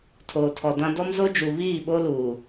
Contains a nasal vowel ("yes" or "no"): yes